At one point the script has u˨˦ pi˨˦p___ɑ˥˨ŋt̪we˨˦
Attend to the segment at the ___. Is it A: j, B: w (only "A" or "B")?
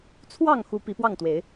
B